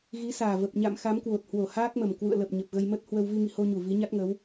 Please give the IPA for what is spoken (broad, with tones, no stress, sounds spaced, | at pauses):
ɣ i˨˦ s aː˨˩ v ə˨˩ p̚ ɲ a̰˧˨ m x a˨˦ m k w o˨˩ t̚ h w o˧˩ h aː˦˥ k̚ m ə˨˩ m k w ṵ˧˨ ə̯ l ə˨˩ p̚ ɲ ə˨˩ p̚ ɣ ə˧ j m ə˦˥ t̚ h w ə˧ w v i˧ ŋ ḭ˧˨ h o˧ ɲ u˧˩ v i˨˦ ɲ a˦˥ t̚ ŋ ə˨˦ w